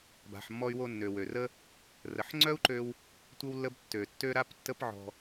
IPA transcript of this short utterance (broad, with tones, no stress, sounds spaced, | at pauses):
b a̤˩ ħ mː ɔ˧ y̯ w o˧ nː ø˩ w ø˩ r ə˥ | r ə˩ ħ ŋ͡ǀ œ˥ u̯ ǃ ø˧ w | tʷ ə˥ w lː ə˥ b tː ø˩ tː ø˥ ɾ a˥ p tː ə˥ p ʕ ɔ̤˧